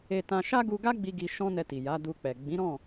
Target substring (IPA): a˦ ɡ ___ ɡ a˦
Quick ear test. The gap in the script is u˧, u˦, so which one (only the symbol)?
u˧